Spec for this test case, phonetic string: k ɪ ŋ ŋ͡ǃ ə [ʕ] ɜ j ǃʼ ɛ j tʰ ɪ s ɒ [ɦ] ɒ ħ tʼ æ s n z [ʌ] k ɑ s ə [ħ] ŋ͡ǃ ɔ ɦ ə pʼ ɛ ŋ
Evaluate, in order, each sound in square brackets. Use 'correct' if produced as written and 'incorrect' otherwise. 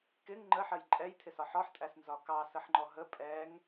incorrect: ħ, incorrect: ħ, incorrect: ɒ, correct

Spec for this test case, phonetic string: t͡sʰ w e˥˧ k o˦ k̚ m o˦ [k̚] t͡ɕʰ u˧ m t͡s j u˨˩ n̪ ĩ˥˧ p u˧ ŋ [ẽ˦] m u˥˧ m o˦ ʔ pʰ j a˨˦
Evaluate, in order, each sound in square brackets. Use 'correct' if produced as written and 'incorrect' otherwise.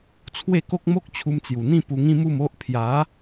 correct, incorrect: ĩ˦

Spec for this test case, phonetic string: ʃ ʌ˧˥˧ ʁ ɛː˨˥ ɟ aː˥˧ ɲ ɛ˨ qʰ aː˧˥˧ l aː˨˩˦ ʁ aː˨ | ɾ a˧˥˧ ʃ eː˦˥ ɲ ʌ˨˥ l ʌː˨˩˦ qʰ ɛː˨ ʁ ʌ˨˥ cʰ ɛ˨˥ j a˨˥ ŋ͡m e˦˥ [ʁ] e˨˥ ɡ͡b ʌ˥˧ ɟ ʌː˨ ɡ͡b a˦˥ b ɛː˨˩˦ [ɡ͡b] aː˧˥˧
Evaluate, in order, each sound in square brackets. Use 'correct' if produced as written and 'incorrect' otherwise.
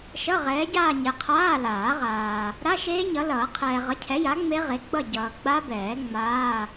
correct, incorrect: ŋ͡m

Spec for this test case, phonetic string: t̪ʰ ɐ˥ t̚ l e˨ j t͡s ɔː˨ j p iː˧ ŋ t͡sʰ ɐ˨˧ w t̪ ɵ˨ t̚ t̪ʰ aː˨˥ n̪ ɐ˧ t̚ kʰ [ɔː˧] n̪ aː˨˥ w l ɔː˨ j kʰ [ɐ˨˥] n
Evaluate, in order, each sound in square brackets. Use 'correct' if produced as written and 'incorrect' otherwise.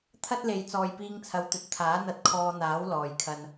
correct, incorrect: ɐ˧

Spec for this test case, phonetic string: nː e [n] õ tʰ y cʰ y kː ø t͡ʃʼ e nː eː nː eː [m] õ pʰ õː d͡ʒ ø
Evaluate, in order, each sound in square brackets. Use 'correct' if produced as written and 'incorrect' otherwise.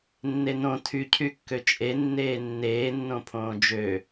correct, incorrect: nː

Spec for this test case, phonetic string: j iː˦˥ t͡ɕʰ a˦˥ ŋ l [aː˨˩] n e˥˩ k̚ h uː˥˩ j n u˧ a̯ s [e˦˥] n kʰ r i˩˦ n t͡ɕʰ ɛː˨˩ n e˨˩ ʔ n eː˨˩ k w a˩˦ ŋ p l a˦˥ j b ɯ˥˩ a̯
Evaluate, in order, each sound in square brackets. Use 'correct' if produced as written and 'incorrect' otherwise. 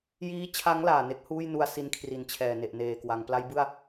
correct, incorrect: i˦˥

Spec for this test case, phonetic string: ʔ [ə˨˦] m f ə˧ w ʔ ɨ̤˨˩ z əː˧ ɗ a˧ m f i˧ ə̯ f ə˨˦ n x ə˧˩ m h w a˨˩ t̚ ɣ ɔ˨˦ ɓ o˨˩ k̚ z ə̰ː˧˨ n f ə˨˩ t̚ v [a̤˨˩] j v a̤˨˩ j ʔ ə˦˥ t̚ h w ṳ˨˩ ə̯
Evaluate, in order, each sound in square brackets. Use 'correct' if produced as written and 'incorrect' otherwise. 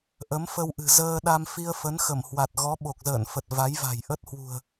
correct, incorrect: a˨˦

